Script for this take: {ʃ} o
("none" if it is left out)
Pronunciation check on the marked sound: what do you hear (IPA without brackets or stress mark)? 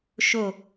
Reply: ʃ